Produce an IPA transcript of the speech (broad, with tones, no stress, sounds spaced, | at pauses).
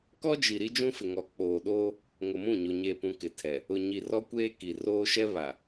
k ɔ˦ d͡ʒ i˨ ɾ i˦ d͡ʒ ũ˦ f ɪ˨ ŋ ɔ˨ k͡p oː˨ ɗ oː˦ | ŋ ʊ˨ m ũ˦˨ ɲ o˨ ɲ eː˨ p ũ˨ k ɪ˨ tʰ ɛ˨ | ʊ˨ ɲ i˨ r ɔ˦ kʷ eː˦ k i˨ r oː˦ ʃ ɛ˦ β a˨